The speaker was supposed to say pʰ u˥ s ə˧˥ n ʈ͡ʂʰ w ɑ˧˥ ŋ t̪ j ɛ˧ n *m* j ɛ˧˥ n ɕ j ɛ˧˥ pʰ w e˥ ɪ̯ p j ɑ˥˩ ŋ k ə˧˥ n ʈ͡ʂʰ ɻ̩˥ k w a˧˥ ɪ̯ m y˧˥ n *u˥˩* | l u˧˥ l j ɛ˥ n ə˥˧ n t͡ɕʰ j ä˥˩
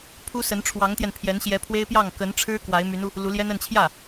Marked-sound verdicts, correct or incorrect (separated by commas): incorrect, incorrect